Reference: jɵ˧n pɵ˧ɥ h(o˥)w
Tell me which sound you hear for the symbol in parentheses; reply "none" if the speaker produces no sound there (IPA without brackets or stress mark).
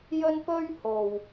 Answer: o˨